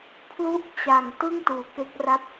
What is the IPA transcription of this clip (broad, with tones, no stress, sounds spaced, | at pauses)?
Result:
pʰ l u˥˩ ʔ t͡ɕ a˨˩ ŋ t ɯ˥˩ ŋ t uː˩˦ k e˦˥ k̚ r a˥˩ p̚